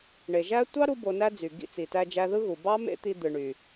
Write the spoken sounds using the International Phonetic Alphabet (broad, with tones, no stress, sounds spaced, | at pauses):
ɳ e˨ ʒ æ˦ tʷ ɑ˦ ɾ u˦ b o˧ n æ˦ d͡z y˨ ɡ ḭ˦˨ t͡s i˨ t æ˧ d͡ʒ æ˧ ð ɯ˦ ɣ u˨ b ɑ˦ m ḛ˦ t̪ i˧ d̪ ɯ˨ ɳ y˨